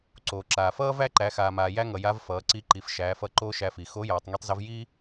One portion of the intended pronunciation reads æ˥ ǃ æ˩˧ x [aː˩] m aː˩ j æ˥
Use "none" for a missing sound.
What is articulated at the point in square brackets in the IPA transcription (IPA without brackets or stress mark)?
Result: aː˩